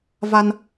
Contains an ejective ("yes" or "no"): no